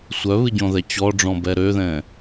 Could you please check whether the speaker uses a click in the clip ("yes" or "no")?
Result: no